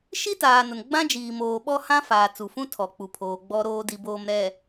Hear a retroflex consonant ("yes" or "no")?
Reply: no